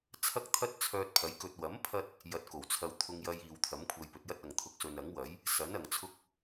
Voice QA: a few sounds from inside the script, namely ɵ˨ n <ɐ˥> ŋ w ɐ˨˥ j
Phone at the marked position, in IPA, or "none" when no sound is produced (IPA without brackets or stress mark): ɐ˨˥